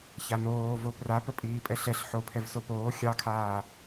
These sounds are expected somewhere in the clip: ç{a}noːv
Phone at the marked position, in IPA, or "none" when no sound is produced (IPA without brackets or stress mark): a